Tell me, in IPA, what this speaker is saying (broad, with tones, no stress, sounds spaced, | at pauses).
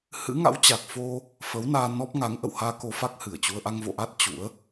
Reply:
h ɨ̰˧˥ ŋ a̰˧˥ w t͡ɕ a˨˩ k̚ f o˧ | f ə˨˦ w n aː˧ n ɔ˦˥ p̚ ŋ a˨˦ ŋ ʔ ə̰˧˨ w h aː˧ k o˧ f a˦˥ k̚ h ɨ˧˩ ə̯ t͡ɕ u˧ ə̯ ʔ a˧ ŋ v o̰˧˨ ʔ a˦˥ t̚ t͡ɕ ṵ˧˥ ə̯